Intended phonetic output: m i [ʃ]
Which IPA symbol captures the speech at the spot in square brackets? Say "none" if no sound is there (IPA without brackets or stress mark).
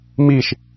ʃ